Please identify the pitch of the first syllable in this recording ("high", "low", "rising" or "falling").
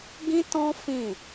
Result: high